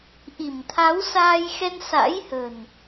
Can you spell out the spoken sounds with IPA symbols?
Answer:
ʔ i˧˩ m t̪ʰ a˨˦ w s aː˧ j x ɛ˧ n s a̰˧˥ j h ə̤˨˩ n

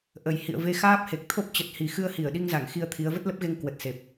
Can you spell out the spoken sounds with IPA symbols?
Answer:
ʔ ə˨˩ j h ḭ˧˨ ə̯ v e˧ x aː˦˥ p̚ h e˨˩ k̚ t̪ʰ o˦˥ p̚ t͡ɕ ə˨˩ t̚ h i˨˩ x ɨ˧ ə̯ h i˧˩ ə̯ ɗ i˧ ŋ z a˧˩ ŋ x i˧ ə̯ t̪ʰ i˨˦ ə̯ v ə˦˥ t̚ l ə˦˥ p̚ ɣ e˧ ŋ k w ə˨˩ t̚ s e˨˩ p̚

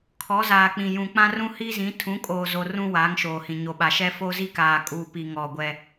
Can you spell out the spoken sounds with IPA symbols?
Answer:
kʰ ɔ˨˦ z aː˨ k͡p ĩ˨ j ũ˨ k͡p ã˦ r ũ˦ h i˦ z ĩ˨˦ tʰ ũ˨˦ kʼ oː˨ z o˨ r ũ˦ w aː˨˦ ŋ ʃ oː˨ h ĩ˨ ɲ o˨ ɓ a˨ ʃ ɛ˦ f o˦ z i˦ k aː˨ kʼ uː˦ p i˦ ŋ ɔ˦˨ ɡʷ ɛ˦

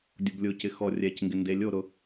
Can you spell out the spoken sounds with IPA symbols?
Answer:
dʲ ʊ b lʲ ʊ c ɪ x ɔ rʲ ɛ c ŋ ɡ ɪ n d e lʲ o ɾ ʊ

